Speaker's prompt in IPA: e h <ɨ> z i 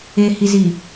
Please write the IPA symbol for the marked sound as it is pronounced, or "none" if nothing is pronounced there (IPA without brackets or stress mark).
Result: i